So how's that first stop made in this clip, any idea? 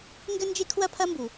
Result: plain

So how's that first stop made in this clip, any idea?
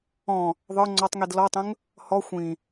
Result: click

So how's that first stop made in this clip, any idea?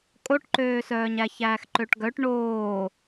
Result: ejective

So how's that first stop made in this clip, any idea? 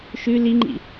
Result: click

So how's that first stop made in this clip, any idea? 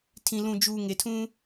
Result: aspirated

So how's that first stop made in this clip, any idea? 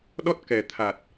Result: implosive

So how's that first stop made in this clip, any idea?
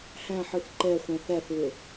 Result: click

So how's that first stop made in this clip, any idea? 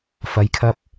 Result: aspirated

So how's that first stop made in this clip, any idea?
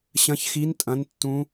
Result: ejective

